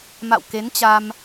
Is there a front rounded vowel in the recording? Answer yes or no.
no